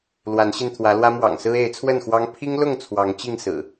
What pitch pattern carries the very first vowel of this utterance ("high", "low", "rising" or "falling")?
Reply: rising